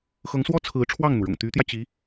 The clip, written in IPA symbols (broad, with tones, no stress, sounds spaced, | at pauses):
x ɤ˧˥ ŋ s w ɔ˥ t͡sʰ ɹ̩˧˥ ʈ͡ʂʰ w ɑ˥˩ ŋ n̪ u˩ ɻ ʊ̰˨˩ ŋ t̪ y˧˥ t̪ j ä˧ t͡ɕ i˧˥